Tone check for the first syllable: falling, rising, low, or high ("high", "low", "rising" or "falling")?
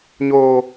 high